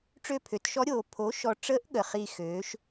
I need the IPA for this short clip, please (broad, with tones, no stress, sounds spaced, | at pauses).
ʈ͡ʂ ø˦˨ pʰ ø˩˥ t ʃ ɔ˧˥ ɾʲ oː˨ pʰ o˩˥ ʃ ɔ˨ ʈ͡ʂ ə˧˥ ʔ ɠ ə˨ χ i˦˨ x øː˩˥ ʃ